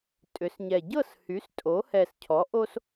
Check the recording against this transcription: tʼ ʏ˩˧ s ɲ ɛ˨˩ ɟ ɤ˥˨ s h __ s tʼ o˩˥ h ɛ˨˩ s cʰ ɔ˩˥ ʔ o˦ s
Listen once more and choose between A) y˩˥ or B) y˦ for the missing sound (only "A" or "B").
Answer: A